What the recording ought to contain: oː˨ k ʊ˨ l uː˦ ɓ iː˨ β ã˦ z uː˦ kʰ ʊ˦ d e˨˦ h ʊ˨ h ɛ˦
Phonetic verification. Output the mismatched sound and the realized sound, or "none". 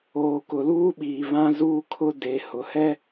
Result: none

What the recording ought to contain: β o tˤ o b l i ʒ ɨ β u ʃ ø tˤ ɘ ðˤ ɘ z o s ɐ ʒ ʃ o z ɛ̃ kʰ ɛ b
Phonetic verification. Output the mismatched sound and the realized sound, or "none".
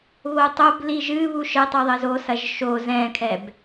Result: ø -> ɘ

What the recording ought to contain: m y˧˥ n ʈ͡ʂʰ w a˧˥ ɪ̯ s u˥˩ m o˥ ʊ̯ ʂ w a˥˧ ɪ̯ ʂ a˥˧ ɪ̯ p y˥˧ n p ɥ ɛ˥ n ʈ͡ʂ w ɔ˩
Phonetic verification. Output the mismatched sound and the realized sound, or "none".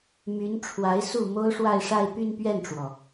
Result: ɛ˥ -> ɛ˥˩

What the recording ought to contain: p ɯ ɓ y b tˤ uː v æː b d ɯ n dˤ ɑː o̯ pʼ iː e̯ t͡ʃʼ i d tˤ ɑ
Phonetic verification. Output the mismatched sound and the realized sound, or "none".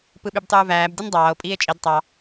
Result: none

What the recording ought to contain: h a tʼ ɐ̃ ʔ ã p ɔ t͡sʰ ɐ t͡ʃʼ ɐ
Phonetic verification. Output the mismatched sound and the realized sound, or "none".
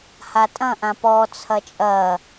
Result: none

